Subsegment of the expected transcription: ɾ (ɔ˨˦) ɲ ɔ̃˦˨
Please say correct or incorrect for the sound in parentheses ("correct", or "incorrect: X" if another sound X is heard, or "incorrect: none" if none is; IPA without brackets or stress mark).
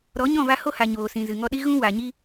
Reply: correct